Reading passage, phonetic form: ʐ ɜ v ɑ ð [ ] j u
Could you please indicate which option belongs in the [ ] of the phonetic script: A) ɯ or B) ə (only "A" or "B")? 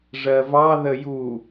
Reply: B